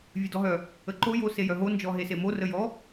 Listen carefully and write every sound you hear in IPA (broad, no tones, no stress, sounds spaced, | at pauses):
vʲ ɨ d ɔ ɦ œ | ə ǃ o j o s e j œ ɦ o n d͡ʒ ɔ ɦ e s e m o r ə j ɔ